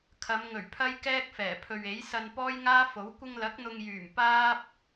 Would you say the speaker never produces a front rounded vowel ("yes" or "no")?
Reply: no